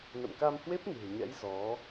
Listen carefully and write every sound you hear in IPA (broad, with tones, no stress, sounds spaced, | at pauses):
n ə̰˧˨ m k a˧ m h w e˦˥ p̚ n ɨ̤˨˩ ə̯ ɲ ɛ̰˧˥ j z ɔ˨˦